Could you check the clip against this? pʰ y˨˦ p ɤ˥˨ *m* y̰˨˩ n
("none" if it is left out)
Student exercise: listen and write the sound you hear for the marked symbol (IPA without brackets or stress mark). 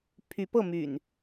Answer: m